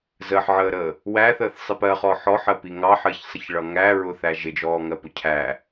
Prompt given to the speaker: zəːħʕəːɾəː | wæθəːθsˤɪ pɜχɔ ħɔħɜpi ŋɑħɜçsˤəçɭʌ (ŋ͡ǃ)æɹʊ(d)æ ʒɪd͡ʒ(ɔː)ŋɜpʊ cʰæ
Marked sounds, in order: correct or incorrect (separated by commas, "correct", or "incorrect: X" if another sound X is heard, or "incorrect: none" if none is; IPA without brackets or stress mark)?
incorrect: ŋ, incorrect: θ, correct